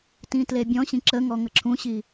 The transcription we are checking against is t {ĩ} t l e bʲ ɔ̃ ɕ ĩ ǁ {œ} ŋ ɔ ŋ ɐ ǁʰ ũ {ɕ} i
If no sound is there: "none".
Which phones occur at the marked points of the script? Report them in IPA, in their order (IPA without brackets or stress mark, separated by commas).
ĩ, ə, ɕ